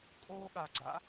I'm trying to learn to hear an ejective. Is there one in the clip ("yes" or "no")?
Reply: yes